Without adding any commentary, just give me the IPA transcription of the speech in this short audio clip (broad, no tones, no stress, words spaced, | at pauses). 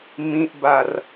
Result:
mĩʔbar